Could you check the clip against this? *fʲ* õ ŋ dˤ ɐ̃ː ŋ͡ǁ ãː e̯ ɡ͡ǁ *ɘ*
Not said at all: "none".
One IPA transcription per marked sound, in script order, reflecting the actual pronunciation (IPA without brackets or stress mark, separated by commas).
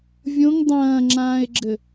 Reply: vʲ, ɘ